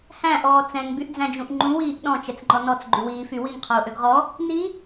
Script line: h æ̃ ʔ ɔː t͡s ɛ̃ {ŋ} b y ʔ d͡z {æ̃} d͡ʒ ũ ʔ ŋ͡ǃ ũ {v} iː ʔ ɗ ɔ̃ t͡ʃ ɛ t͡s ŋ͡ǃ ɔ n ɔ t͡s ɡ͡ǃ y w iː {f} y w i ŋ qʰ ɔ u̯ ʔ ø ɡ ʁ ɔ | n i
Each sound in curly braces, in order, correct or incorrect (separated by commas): correct, correct, incorrect, correct